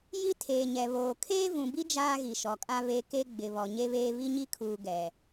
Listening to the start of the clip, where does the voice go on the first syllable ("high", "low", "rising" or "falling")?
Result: high